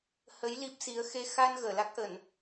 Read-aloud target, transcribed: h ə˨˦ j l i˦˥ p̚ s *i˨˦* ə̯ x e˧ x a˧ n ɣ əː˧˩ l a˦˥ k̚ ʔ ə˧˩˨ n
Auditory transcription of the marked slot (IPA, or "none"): i˨˦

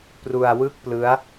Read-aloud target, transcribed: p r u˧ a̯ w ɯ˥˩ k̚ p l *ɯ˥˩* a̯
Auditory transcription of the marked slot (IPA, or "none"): ɯ˦˥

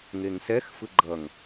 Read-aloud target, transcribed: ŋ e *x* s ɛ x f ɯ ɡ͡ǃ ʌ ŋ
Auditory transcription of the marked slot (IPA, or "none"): ŋ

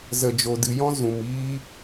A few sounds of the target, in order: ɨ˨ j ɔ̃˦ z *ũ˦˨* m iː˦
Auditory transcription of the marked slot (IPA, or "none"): ũ˨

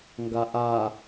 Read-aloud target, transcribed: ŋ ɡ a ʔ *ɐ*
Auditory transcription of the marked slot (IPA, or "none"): a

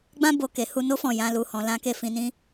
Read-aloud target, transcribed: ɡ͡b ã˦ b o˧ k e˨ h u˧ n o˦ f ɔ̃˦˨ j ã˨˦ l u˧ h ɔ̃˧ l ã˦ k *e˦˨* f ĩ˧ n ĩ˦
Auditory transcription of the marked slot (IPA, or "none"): e˦˨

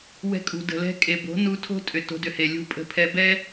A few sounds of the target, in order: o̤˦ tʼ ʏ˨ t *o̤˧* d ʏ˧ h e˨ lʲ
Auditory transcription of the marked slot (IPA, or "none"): o̤˧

